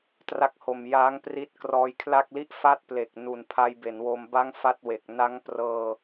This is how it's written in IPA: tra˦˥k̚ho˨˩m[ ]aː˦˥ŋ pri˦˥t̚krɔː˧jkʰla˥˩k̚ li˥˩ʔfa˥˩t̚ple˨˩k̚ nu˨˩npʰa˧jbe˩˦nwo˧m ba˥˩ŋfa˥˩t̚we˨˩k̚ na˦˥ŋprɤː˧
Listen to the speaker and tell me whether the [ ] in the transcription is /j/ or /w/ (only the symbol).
j